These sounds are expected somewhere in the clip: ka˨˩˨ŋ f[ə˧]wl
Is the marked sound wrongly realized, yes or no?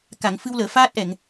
yes